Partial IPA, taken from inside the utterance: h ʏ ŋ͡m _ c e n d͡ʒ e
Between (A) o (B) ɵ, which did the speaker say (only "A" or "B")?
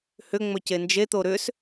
B